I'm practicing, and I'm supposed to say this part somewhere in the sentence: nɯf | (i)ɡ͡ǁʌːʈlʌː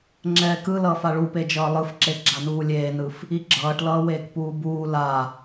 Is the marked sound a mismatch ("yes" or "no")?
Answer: no